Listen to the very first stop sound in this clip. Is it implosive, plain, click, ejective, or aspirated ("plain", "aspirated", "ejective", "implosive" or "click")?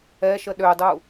implosive